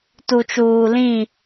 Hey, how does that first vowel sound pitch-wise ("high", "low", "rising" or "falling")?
low